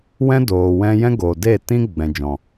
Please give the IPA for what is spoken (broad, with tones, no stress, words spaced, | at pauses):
wɛ̃˦doː˨wɛ̃˧jɛ̃˦ ɡo˨de˦˨ tĩ˦ɡ͡bɛ̃˨ d͡ʒɔ̃˨